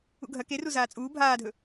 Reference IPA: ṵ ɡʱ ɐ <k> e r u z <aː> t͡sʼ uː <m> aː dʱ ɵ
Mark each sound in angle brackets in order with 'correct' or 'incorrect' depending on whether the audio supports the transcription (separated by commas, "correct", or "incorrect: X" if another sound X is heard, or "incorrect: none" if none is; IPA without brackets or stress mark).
correct, correct, incorrect: bʱ